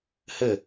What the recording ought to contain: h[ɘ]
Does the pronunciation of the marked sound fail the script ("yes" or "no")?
no